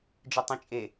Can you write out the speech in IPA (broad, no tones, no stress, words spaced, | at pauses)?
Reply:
d͡ʒɨtˤɛ̃t͡ʃʼe